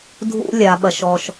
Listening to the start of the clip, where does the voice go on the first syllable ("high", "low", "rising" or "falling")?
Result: high